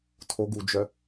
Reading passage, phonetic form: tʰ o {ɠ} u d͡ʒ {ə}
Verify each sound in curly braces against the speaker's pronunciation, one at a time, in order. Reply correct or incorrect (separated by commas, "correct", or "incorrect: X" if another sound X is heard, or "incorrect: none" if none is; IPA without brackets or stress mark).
incorrect: ɡ, incorrect: œ